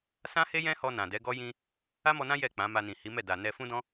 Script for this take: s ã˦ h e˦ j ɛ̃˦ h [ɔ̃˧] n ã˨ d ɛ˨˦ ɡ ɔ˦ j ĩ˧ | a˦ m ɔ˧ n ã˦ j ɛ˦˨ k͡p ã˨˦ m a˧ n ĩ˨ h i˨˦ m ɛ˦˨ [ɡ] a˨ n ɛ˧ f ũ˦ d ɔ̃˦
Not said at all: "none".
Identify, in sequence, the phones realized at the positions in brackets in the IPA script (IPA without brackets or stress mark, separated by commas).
ɔ˧, d